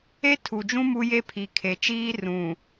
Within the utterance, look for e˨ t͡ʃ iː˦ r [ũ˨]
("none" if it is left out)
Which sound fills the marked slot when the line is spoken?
ũ˨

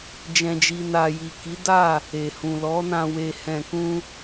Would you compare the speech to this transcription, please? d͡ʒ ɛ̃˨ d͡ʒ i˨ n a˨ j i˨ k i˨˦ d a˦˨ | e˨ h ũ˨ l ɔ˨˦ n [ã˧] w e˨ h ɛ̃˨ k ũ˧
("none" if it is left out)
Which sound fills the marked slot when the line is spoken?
ã˧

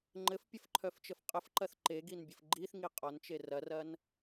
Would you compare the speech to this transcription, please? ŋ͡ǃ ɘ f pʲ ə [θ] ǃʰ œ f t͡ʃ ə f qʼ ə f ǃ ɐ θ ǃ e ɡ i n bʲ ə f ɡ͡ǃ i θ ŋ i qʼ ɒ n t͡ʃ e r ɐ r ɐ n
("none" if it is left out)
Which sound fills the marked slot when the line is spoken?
f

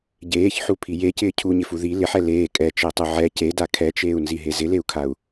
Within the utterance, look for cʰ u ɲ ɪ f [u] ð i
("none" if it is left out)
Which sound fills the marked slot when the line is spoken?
u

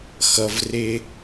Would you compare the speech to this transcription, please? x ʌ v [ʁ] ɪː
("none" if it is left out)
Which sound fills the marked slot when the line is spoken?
r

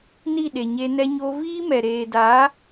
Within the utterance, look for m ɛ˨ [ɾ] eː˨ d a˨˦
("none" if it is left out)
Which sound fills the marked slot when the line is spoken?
ɾ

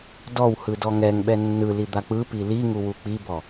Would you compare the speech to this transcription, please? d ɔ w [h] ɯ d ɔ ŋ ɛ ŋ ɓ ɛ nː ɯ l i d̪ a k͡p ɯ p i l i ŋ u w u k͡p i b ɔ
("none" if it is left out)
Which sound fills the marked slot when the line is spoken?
h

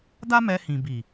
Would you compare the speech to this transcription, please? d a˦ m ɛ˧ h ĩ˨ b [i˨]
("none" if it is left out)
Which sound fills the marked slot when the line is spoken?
i˨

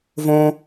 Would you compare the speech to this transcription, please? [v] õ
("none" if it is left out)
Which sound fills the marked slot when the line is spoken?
v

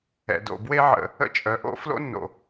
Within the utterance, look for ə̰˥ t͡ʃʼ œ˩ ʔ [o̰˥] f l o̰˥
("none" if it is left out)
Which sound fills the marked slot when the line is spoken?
o̰˥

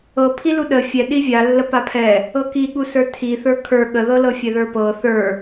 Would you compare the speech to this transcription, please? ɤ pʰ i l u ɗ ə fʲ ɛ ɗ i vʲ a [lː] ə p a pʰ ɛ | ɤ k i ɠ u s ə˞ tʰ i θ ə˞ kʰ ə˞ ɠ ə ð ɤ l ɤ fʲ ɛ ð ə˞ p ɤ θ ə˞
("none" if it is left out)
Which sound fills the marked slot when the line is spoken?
lː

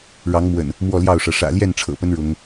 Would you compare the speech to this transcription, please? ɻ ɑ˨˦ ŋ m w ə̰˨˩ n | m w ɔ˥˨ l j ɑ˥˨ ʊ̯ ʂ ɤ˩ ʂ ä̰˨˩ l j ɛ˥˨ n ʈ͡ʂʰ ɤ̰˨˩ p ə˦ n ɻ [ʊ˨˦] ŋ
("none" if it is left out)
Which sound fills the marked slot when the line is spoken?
ʊ˨˦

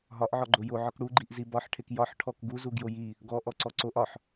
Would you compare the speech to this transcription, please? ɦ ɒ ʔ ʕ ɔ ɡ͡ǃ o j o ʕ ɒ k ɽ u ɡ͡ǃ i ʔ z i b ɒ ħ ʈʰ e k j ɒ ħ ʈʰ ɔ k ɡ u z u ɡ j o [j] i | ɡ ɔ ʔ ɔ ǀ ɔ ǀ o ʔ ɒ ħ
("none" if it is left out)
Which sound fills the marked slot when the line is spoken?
j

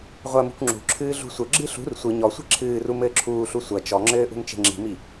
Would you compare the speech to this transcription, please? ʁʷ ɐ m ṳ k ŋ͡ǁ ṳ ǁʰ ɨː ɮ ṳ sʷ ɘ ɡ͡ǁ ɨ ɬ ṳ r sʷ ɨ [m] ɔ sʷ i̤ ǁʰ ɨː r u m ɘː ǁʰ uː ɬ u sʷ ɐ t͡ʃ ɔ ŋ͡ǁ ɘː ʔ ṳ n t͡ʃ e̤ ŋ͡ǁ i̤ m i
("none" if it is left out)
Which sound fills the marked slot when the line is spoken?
ɲ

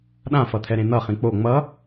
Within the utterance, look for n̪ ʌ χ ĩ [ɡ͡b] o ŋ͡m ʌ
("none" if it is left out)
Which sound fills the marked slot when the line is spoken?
k͡p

